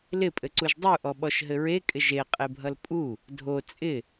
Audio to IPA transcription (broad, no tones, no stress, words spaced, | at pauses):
lɪpʼɘǀuʒ dˤuʔɔɓɔʃ ɦɘɹe kʼɪʒe qʼebʱʌlpʼu | dʱo t͡sʼɪ